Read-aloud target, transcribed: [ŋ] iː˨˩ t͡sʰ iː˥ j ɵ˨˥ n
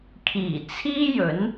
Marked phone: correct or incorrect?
incorrect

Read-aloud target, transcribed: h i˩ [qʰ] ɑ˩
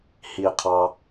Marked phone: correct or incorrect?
correct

